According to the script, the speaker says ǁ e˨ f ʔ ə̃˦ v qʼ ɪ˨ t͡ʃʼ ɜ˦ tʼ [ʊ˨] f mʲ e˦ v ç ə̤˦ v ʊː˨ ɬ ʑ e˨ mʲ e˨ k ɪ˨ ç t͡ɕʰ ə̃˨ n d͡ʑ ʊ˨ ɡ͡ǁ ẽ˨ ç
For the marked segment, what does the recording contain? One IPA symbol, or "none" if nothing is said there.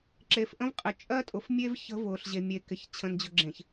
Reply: ʊ˨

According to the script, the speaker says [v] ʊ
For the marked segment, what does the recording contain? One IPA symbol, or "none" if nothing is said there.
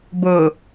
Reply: b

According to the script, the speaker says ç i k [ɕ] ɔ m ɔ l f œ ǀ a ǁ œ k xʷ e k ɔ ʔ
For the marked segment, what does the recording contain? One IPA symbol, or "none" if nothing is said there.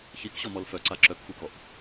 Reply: ɕ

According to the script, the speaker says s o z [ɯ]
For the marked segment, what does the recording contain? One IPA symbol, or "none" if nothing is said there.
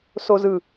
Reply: ɯ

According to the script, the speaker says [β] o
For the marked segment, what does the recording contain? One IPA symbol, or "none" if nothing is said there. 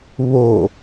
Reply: β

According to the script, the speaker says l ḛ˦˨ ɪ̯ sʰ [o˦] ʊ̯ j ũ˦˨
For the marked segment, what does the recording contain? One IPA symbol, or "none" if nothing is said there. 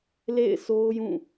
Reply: o˦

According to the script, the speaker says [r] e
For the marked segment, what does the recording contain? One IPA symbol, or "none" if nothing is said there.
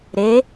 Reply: ɾ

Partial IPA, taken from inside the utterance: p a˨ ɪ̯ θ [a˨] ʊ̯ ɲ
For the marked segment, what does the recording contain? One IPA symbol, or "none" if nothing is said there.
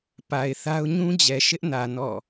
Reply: a˦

